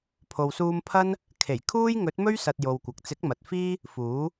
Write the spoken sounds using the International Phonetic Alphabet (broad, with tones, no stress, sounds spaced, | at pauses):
pʰ o˨ w s uː˧ m pʰ ɐ˥ n | kʰ e˨˩ j kʰ uː˥ j ŋ ɵ˨˥ t̚ m ɵ˥ ɥ s ɐ˨ t̚ j o˨ w kʷ ɐ˨ k̚ t͡s ɪ˨˥ k̚ m ɐ˨ t̚ f iː˥ | f uː˨˥